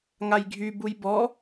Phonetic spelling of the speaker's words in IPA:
ŋ a j ɡʱ y b u j b ɔ

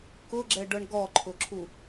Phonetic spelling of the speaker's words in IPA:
k ʊ ɡ͡ǁ ɛ ɖ ɤ ɳ ɡ ɔ ǃʰ ʊ ǁʰ u

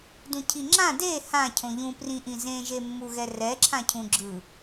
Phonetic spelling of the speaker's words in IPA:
d ũ cʰ i ŋ͡ǁ ã d e h ã cʰ õ ʎ ũ p r ĩ ʔ ĩ z ẽ ʒ e mː u ɣ ɛ r ɛ ǁʰ ã cʰ ũ ɡ͡ǁ ɯ

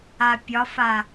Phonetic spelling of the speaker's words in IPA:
a pʲ ɒ f a

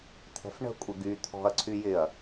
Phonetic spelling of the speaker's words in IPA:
t̪ʰ ɛ̤ f ɳ ə̤ kʷʼ ɪ ɡ y t̪ʰ ɔ̤ ɐ̯ ǀʰ y j ɪ ɐ̯

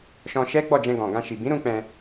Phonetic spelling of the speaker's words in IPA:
ʃ ɔ̃˧ ʃ ɛ˦ ɡ͡b ɔ˦˨ d͡ʒ ɛ̃˧ ɡ ɔ̃˨ ɡ ã˧ ʃ i˨ b ĩ˨˦ ɾ ũ˧ k͡p ɛ̃˧

